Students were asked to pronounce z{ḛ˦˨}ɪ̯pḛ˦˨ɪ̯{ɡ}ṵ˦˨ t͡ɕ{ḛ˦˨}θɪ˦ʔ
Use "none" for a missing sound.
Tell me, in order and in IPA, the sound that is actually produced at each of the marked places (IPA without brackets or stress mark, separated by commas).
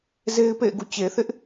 e˦, ɡ, e˨